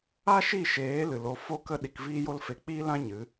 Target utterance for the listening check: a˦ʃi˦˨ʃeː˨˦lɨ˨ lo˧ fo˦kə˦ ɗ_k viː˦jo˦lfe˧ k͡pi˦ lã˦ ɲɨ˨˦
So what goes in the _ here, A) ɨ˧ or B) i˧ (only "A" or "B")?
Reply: B